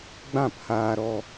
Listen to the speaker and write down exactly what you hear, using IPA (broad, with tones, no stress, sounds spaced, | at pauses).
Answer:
ɡ͡b ã˦˨ p h aː˧ ɾ ɔ˧